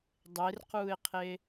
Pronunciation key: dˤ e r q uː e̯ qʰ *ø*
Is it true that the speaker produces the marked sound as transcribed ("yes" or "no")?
no